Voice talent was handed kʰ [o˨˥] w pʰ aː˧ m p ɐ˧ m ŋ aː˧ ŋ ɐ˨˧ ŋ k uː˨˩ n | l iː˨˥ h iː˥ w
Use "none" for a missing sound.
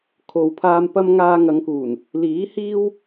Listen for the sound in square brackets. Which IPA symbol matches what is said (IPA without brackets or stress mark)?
o˨